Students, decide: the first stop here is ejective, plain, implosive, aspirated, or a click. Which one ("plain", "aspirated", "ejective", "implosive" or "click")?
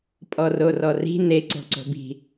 ejective